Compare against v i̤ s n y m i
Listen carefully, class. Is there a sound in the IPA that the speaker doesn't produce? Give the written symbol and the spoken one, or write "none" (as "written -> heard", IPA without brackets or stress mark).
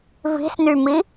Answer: none